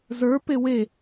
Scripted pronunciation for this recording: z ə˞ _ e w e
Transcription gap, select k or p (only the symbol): p